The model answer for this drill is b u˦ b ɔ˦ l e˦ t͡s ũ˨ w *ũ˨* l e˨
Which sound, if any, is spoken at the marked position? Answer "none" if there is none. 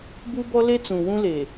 ũ˦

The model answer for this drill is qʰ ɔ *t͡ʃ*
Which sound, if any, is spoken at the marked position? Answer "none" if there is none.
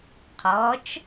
t͡ʃ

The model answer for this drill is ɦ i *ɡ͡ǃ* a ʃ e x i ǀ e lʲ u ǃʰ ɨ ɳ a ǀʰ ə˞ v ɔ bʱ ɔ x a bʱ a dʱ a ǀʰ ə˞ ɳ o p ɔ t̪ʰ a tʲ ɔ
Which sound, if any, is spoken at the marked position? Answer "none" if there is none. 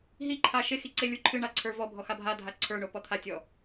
ǃʰ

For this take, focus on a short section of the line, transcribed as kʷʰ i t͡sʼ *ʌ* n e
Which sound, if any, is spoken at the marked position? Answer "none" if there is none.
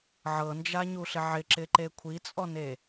ɔ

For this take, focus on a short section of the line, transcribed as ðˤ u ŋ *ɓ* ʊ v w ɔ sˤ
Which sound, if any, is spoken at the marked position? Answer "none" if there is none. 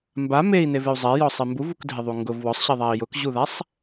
ɡ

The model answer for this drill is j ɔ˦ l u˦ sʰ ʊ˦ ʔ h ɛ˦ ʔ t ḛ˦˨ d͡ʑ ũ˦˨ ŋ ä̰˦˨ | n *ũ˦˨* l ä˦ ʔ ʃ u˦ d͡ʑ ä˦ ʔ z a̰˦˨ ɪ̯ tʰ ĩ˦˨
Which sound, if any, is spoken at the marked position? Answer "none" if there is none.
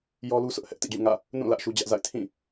ũ˦˨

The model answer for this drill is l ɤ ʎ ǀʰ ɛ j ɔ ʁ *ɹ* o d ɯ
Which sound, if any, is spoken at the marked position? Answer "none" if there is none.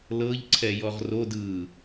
r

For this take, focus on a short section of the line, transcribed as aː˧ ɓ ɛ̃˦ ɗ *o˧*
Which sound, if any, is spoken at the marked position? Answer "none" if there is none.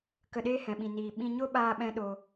o˧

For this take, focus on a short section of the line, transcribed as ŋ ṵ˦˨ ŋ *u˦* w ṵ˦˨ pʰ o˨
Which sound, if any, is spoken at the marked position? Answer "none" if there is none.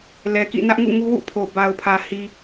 u˦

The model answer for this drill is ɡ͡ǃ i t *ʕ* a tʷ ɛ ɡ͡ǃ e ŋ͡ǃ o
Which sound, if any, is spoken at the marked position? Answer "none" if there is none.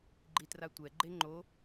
r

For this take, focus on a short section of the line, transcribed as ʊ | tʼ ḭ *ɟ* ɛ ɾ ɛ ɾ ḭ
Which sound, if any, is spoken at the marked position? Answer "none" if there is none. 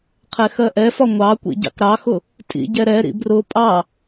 ɟ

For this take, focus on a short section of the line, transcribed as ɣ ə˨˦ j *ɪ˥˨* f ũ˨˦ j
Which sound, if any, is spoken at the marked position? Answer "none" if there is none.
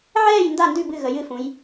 ɨ˥˨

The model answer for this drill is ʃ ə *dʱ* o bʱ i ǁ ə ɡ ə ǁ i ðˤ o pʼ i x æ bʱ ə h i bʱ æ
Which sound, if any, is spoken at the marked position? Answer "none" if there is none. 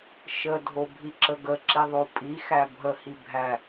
dʱ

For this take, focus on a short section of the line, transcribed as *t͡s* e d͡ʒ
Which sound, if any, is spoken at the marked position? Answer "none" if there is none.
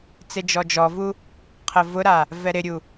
t͡s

